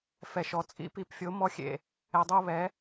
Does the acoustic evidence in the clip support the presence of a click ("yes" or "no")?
no